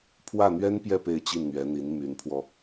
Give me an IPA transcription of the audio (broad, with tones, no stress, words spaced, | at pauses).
pʰwä˥˩n̪ɥɛ˥n pjɛ˥˧ pe˥˧ɪ̯t͡ɕi˥˩nn̪ɥɛ˧˥n̪i˧˥n my˧˥npʰwɔ˧